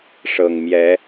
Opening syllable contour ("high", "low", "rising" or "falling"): low